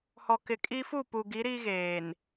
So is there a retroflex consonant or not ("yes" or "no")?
no